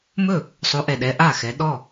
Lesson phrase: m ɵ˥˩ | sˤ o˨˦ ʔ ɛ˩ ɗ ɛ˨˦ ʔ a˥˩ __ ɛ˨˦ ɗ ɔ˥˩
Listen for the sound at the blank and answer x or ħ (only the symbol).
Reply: x